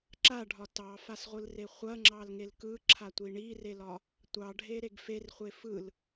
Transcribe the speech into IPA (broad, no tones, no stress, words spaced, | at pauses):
ǁaɖʱɒ tɑfasʁʷɯlre χʷɐŋ͡ǁɑlŋel kɯǁʰatʷi ɳirelɒ | tʷɑɖʱeɾeɡ ferχʷe fɯl